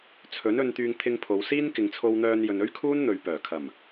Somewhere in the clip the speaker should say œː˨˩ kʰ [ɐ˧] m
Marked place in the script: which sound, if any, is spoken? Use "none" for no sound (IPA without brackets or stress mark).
ɐ˨˩